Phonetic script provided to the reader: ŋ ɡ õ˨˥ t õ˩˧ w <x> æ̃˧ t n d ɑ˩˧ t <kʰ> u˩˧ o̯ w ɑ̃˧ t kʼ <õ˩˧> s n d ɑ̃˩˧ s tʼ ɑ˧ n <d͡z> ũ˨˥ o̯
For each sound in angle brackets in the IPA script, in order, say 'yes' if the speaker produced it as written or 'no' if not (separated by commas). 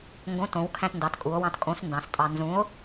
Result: no, no, no, no